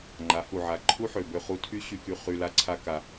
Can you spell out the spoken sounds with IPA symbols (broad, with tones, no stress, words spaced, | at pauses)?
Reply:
ŋ͡ǃa˨˦hu˨ʕa˨ ǃʰu˦ħø˨bø˧ χu˧tʰy˦ ɕy˧ky˧ χy˧ la˦ǀʰa˦ka˧